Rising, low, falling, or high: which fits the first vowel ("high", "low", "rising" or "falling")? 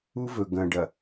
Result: high